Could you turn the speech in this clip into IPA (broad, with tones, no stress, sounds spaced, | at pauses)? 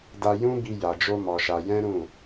d a˧ j ũ˦ b i˧ j a˨ d͡ʒ o˧ m ɔ˧ ʃ a˧ j ɛ̃˦ ɾ ũ˦˨